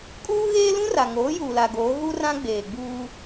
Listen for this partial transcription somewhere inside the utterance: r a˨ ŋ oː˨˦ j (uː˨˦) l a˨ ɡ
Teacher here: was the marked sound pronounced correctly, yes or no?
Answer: no